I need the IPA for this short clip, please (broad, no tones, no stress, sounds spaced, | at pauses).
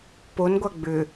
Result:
p o n ɡʷ a ɡ͡b ʏ